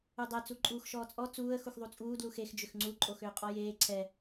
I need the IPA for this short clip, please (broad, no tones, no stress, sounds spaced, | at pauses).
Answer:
u dˤ ɛ t͡s u ǃʼ uː x ʃ ɔː t͡sʼ ɔ t͡s uː ə̯ x u x ðˤ u t͡sʼ uː d l u x e x d͡ʒ ʏ x ŋ͡ǀ u ǃʼ o x ʏː qʼ ɔ j eː ǀʰ ɛ